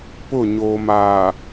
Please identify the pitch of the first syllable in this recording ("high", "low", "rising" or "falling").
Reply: falling